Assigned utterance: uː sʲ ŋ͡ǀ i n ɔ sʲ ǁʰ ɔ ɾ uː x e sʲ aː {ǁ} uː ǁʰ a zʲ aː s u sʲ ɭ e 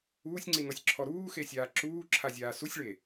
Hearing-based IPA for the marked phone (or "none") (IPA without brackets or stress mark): ǁ